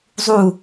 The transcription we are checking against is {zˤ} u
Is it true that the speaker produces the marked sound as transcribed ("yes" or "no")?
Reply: yes